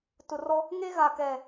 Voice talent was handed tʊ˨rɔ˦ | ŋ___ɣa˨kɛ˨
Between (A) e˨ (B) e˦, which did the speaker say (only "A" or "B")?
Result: B